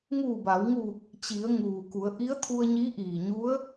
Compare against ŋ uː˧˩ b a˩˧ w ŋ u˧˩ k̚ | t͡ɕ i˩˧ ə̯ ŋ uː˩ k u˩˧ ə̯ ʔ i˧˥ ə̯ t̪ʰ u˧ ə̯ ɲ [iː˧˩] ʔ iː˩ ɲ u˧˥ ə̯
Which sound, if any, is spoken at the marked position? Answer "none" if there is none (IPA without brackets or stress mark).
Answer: iː˧˥